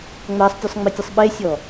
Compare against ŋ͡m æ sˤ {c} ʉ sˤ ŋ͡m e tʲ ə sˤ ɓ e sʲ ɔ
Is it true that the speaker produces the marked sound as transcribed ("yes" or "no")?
no